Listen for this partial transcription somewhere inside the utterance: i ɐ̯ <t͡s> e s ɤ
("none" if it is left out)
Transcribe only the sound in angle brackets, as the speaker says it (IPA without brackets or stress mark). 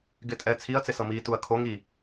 t͡s